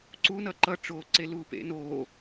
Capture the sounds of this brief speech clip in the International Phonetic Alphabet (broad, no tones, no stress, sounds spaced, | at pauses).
ǀ u n ʌ ǃ ʌ ʈ͡ʂ oː ǀ e l uː p ḛ n oː